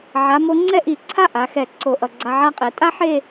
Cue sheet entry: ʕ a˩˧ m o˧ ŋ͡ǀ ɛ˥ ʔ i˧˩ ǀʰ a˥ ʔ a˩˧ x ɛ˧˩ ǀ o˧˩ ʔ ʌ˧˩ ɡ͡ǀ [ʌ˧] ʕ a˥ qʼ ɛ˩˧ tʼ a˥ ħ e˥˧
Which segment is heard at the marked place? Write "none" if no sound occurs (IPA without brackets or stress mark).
a˧